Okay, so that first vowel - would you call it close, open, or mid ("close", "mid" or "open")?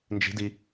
close